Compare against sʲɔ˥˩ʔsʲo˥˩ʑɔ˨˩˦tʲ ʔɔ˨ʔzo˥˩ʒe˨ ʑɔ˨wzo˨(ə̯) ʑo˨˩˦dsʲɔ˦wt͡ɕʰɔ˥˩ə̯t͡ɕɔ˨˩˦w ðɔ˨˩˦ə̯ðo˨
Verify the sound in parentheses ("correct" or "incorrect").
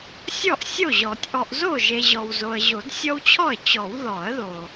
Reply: correct